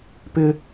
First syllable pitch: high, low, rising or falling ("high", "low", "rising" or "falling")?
high